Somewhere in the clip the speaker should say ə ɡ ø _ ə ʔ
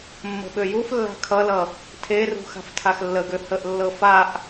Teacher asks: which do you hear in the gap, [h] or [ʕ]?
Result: h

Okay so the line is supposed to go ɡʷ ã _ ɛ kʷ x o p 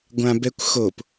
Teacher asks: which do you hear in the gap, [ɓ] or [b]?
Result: b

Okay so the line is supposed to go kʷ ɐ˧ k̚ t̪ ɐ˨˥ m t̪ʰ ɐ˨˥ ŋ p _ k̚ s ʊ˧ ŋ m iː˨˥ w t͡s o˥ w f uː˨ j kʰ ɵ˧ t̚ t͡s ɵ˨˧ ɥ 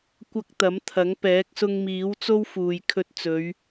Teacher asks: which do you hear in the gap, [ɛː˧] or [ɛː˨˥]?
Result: ɛː˨˥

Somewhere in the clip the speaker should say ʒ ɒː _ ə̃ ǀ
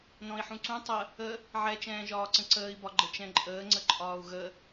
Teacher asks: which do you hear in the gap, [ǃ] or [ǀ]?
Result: ǀ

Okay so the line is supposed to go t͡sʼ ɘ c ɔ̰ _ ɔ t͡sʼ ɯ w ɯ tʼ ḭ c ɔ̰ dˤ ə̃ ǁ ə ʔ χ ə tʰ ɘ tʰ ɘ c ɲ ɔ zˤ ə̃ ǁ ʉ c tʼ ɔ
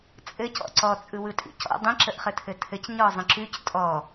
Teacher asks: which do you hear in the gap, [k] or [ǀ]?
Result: ǀ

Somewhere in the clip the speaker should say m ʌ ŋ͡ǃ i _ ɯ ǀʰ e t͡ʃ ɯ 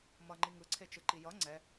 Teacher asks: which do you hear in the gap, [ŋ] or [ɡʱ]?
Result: ŋ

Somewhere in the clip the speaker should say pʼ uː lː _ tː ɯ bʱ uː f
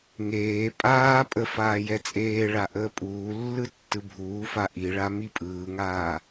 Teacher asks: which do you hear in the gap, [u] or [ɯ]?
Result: ɯ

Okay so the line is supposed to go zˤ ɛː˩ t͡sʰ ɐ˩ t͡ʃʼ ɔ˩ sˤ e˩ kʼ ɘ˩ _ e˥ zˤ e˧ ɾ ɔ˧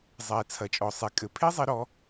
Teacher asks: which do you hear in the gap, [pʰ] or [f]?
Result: pʰ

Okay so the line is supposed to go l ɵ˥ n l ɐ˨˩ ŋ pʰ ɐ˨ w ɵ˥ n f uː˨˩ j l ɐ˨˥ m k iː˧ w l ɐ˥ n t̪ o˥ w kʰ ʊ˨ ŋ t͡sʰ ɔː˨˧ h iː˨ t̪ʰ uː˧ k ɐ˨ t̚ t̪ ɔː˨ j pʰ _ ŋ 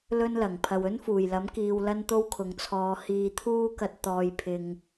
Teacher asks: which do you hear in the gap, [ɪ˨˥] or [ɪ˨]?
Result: ɪ˨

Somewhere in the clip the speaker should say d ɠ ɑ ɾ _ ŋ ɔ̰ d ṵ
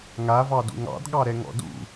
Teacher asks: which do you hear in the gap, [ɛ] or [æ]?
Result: ɛ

